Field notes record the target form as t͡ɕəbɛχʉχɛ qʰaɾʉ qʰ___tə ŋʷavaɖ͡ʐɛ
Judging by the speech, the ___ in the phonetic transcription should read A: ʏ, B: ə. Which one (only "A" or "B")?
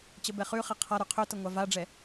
A